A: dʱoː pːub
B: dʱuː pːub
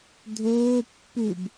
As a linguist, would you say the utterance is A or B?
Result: A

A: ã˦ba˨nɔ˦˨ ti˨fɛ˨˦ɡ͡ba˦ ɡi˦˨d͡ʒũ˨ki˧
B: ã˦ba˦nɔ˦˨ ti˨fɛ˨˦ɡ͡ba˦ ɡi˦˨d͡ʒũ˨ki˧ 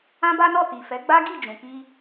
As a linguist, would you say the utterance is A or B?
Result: B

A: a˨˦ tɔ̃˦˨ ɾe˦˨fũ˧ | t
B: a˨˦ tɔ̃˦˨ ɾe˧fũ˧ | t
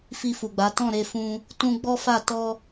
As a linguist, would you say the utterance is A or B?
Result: B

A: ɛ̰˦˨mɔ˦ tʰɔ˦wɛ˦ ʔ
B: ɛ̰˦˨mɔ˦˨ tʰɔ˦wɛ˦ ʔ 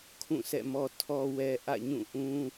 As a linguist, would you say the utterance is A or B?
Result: A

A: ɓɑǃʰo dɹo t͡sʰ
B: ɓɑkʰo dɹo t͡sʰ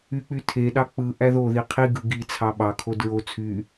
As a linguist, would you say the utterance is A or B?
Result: B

